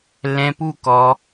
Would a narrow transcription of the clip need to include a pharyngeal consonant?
no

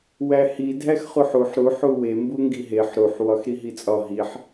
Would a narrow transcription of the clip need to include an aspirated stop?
no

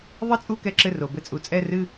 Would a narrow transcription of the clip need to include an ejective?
yes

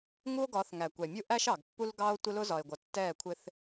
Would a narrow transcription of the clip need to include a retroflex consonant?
no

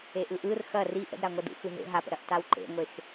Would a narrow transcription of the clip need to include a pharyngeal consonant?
no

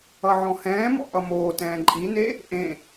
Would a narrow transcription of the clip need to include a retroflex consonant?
no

